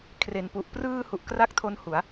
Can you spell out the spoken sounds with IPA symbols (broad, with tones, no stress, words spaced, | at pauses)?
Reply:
kʰre˨˩npu˨˩ʔ prɯː˧ hu˨˩ʔ kra˥˩k̚tʰo˦˥n hu˩˦a̯